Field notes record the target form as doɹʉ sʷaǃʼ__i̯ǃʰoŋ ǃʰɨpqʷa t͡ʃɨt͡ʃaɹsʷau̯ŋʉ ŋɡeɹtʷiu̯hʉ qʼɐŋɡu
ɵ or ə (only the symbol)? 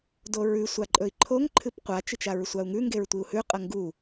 ɵ